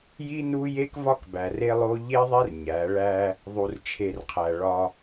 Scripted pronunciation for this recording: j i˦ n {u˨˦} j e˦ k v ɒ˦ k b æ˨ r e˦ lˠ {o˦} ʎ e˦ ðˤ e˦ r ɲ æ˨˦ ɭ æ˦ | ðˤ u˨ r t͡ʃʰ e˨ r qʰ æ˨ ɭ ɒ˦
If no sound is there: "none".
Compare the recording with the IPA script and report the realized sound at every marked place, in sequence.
u˦, o˦

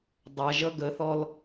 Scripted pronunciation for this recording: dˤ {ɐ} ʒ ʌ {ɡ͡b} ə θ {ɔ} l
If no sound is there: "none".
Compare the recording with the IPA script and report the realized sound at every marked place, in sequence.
ɐ, ɡ, ɔ

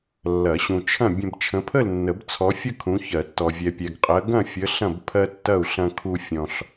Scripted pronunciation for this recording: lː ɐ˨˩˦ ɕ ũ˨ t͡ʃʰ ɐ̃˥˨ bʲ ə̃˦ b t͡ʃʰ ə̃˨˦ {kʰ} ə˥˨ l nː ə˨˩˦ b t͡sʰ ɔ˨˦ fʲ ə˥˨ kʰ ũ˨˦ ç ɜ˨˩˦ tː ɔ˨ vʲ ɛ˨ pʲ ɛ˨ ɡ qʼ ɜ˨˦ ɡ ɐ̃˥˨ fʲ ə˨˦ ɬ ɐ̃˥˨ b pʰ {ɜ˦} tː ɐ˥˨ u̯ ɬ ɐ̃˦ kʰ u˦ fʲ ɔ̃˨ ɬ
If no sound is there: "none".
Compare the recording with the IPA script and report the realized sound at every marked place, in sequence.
pʰ, ɜ˦

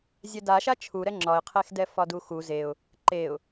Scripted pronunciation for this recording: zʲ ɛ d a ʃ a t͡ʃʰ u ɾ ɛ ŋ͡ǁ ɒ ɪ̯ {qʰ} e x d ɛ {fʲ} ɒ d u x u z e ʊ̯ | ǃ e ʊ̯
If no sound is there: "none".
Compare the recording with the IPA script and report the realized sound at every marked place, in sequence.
qʰ, f

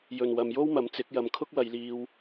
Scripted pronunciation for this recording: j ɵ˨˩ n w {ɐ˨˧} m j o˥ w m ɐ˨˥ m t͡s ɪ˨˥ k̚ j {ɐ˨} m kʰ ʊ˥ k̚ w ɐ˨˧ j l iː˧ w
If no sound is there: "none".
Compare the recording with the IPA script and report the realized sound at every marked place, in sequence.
ɐ˨, ɐ˨

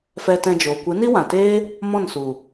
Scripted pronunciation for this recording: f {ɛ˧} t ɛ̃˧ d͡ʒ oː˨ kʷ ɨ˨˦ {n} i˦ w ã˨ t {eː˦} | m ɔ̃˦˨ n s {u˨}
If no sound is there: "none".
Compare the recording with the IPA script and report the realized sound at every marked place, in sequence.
ɛ˧, n, eː˦, u˨

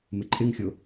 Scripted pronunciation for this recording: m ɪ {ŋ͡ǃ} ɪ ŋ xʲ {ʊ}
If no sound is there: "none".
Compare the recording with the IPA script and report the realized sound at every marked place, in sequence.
ǃʼ, ʊ

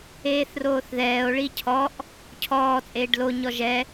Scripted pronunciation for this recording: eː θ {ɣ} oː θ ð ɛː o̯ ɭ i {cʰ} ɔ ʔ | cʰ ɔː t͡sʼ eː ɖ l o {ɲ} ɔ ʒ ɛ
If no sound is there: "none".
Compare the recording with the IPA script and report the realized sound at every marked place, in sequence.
r, cʰ, ɲ

